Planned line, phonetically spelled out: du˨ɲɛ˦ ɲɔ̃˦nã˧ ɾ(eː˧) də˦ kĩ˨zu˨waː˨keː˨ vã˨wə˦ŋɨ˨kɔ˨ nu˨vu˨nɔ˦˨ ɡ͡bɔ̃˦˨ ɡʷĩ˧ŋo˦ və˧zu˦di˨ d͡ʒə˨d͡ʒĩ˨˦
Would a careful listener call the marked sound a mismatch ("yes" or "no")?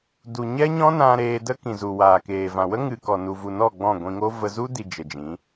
no